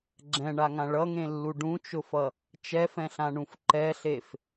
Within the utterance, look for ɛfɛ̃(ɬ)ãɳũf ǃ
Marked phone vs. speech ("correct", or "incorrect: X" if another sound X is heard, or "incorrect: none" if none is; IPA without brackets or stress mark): correct